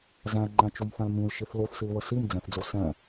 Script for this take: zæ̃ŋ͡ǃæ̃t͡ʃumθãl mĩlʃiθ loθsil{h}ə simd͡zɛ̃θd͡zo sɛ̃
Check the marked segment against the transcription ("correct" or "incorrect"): incorrect